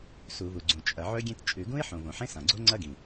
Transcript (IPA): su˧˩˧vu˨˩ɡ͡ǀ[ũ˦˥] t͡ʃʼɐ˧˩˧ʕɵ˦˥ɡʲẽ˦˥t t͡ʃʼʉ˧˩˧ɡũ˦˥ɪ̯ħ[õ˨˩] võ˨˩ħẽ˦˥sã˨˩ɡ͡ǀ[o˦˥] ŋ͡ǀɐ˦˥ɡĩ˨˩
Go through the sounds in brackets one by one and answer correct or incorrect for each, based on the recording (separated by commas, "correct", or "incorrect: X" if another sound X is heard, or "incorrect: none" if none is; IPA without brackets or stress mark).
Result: incorrect: ũ˨˩, correct, correct